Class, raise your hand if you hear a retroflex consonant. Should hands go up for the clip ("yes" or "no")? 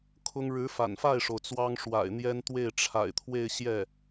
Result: yes